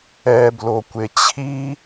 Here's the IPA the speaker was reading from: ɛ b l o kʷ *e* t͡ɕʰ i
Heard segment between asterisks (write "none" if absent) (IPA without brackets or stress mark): e